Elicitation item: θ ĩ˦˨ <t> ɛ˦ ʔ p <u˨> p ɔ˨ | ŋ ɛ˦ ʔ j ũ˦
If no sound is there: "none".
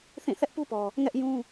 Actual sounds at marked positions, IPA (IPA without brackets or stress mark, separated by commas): θ, u˦